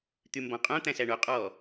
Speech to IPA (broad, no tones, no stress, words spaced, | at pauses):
t̪ymbɔ̃qʼõ t̪æ̃sæɳo qʼɔ